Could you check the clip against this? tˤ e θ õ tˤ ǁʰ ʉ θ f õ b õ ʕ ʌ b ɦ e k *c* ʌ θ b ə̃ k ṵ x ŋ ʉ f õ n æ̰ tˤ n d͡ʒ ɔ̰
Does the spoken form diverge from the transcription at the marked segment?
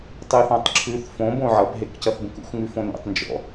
no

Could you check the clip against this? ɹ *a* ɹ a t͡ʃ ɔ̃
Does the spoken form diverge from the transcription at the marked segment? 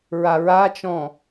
no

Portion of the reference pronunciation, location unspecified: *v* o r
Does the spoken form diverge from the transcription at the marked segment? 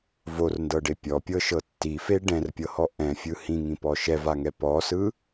no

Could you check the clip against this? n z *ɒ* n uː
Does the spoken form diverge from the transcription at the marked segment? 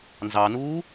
yes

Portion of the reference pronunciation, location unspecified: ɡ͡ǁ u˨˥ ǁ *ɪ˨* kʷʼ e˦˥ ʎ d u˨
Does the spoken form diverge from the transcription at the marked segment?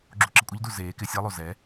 no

